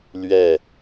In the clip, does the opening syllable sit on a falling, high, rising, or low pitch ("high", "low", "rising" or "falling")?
falling